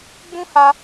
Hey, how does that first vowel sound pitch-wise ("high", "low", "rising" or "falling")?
high